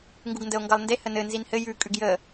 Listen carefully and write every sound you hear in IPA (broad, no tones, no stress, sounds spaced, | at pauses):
ŋ ɡ u ɡ n d ə o̯ ŋ ɡ ʌ lˠ n d e h ə n ɘ n z i n h ɘ j ʉ kʼ ʉ ɡ j ə